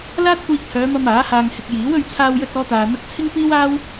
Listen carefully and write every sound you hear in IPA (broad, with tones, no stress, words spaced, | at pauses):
laː˥t̚kʷiː˧k̚hœː˨˧mɐ˧m aː˨˥haː˧ŋhɪ˧k̚ jiː˨˥w ɵ˧ɥt͡sʰaː˧wjɵ˧t̚ ɔː˥t̪aː˧n̪ɐ˥k̚ t͡sʰɪ˥ŋpiː˥waː˥w